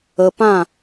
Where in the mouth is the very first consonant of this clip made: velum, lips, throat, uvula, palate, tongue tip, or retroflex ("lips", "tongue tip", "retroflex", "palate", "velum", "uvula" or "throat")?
lips